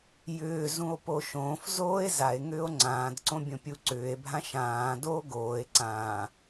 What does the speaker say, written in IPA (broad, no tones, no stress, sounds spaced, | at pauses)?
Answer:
j ʏː z ũ o̯ p o ʃ õː f z oː e̯ z a e̯ ŋ ʏː o̯ ŋ͡ǀ ãː d ǀ õ bʲ õ pʲ u ǀ ʏː e̯ bʱ ã ʃ ãː d oː ɡ oː e̯ ǀ ãː